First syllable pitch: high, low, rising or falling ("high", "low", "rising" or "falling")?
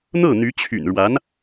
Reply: falling